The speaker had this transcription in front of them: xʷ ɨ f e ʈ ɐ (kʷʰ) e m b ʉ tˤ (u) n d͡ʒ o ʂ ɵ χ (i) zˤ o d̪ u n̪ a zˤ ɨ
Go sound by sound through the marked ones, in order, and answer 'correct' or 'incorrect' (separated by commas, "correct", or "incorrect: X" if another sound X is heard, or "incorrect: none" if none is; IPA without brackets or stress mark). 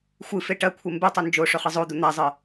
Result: correct, incorrect: ʉ, incorrect: ɨ